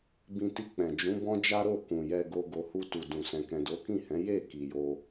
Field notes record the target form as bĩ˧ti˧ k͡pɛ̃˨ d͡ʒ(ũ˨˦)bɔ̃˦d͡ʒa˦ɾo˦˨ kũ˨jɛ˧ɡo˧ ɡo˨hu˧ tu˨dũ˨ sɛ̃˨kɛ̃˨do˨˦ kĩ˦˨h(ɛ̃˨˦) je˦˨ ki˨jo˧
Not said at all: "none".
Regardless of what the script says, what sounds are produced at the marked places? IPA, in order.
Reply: ũ˨˦, ɛ̃˨˦

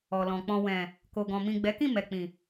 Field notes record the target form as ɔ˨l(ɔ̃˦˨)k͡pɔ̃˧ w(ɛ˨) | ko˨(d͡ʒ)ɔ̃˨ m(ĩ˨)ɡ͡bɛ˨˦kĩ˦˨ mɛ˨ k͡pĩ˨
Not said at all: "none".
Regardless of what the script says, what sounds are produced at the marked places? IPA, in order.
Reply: ɔ̃˨, ɛ̃˨, ɡ, ĩ˨

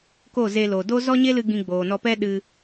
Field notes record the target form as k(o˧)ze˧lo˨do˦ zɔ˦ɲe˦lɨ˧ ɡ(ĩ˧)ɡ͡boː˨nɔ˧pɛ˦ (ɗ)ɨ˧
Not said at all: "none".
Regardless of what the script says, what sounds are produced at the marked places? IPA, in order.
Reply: o˦˨, ĩ˧, ɗ

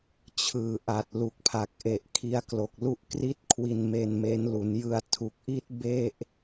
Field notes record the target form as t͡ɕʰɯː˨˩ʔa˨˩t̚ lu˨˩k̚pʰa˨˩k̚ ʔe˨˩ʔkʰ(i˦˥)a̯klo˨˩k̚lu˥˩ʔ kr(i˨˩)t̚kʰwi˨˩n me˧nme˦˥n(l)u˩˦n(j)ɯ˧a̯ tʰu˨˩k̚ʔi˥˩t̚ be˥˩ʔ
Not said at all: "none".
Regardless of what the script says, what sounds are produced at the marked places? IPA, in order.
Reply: i˦˥, i˦˥, l, j

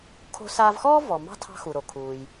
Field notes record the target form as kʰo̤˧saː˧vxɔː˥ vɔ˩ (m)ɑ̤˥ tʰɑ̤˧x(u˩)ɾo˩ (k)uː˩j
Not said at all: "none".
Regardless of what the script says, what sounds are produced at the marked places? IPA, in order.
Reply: m, u˩, kʰ

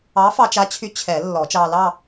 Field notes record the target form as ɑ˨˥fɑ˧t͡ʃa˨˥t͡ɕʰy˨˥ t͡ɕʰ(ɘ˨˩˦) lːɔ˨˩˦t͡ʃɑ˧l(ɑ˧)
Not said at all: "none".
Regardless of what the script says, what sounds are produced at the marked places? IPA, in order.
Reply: ɛ˨˩˦, ɑ˥˧

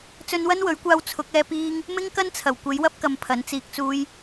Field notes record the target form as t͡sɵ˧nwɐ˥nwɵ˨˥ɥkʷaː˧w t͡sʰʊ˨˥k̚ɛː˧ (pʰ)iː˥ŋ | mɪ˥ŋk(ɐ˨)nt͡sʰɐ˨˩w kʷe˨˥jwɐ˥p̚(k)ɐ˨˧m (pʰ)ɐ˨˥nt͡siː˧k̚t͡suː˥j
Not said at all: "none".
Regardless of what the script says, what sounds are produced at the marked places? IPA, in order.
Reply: p, ɐ˥, k, pʰ

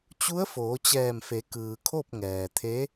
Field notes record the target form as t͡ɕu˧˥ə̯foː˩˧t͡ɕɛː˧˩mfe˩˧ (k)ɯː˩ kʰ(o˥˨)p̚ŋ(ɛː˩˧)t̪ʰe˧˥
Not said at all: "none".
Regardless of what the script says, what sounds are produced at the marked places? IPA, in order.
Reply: k, o˥˨, ɛː˩

